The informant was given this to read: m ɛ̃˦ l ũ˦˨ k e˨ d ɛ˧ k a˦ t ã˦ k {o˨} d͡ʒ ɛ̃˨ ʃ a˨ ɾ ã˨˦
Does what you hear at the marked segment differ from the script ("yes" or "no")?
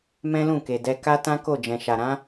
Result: yes